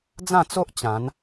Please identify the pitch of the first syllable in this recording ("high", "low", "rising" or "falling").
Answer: falling